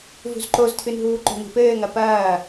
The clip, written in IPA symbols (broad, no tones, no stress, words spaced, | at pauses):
vṳzǃoztʰɨnɦuː ǃo̤ni̤pɘːŋɐ pɐː